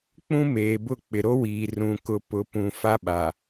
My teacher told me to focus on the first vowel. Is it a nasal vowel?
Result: yes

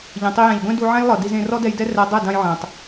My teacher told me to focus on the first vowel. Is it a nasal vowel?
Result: yes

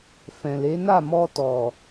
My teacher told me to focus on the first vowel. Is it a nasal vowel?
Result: yes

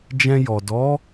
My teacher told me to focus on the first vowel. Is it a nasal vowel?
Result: yes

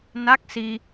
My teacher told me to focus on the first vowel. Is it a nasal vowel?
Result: no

